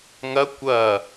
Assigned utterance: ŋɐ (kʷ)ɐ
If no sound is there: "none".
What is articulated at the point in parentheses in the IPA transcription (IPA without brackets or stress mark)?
kʷ